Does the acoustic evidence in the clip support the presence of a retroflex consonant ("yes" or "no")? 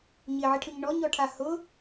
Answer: yes